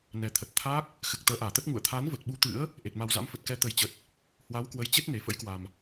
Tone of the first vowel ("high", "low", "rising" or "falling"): low